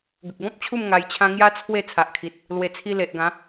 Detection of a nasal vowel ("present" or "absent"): present